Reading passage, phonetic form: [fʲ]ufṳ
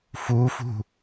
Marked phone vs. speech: incorrect: f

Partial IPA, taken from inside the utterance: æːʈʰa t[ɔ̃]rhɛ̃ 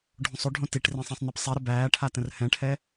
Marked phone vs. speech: incorrect: ə̃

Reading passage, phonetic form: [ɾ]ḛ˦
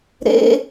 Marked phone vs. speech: correct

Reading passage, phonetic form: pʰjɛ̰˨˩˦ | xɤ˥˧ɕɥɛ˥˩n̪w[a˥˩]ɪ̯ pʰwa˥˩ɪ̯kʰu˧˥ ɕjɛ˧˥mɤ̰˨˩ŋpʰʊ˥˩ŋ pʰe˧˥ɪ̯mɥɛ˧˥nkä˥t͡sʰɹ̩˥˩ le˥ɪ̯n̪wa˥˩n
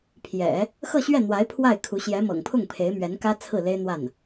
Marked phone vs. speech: incorrect: a˧˥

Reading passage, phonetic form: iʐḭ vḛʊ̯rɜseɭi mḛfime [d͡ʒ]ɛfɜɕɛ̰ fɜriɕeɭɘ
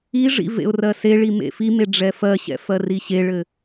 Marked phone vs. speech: incorrect: ɖ͡ʐ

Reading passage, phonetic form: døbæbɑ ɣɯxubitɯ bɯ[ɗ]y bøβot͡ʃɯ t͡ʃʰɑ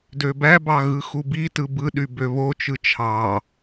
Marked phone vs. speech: correct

